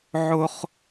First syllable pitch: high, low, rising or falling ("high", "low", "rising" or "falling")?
high